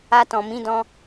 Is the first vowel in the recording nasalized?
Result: no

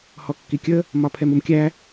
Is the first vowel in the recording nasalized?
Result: no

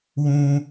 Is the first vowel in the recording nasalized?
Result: yes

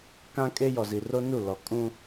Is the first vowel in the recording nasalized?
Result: yes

